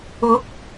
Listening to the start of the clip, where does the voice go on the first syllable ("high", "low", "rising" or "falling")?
rising